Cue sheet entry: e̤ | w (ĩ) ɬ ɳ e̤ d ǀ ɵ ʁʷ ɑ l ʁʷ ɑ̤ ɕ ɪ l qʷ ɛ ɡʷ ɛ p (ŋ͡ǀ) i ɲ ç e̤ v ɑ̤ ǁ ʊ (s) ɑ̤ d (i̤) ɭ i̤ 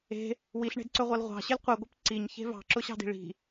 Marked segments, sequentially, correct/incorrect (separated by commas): incorrect, incorrect, incorrect, correct